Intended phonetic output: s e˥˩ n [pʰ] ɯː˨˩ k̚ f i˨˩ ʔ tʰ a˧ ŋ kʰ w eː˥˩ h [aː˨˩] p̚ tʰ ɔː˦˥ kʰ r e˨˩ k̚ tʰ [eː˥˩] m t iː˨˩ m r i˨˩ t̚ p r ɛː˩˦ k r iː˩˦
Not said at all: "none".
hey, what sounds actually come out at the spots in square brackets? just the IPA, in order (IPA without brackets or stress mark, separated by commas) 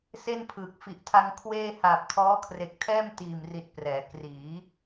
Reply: pʰ, aː˨˩, ɛː˥˩